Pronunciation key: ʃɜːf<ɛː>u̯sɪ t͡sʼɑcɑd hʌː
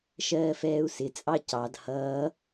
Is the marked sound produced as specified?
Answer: yes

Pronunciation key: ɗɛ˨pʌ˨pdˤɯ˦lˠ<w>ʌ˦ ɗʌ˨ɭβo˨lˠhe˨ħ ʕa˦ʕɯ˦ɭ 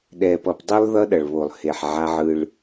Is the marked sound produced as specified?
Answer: no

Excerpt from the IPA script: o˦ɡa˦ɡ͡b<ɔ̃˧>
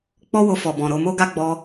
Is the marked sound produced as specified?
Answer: no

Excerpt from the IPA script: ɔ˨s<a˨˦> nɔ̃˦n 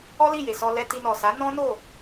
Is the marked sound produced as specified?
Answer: yes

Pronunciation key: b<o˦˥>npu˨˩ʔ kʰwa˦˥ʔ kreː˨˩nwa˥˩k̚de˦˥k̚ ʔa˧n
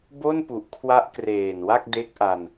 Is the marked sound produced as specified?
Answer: no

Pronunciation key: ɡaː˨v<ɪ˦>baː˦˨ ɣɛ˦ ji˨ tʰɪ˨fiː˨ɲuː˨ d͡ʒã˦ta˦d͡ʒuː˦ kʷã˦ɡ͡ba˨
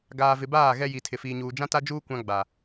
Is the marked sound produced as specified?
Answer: no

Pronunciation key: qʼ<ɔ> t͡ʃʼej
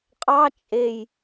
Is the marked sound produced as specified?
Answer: no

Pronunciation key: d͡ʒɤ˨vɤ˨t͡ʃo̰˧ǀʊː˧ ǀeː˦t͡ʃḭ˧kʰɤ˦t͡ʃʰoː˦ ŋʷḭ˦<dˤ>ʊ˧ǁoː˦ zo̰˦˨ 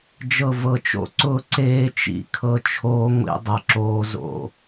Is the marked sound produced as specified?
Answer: yes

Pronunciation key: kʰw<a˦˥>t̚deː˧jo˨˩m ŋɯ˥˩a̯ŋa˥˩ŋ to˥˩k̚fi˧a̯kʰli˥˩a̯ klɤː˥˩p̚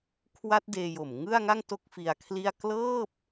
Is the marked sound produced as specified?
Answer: yes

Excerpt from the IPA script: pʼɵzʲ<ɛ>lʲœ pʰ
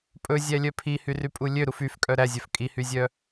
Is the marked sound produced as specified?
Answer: no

